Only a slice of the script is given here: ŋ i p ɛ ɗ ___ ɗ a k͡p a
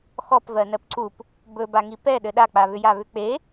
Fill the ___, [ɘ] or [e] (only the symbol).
ɘ